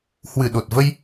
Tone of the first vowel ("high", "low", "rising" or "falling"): low